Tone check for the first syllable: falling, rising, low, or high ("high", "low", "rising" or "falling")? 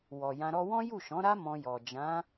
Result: low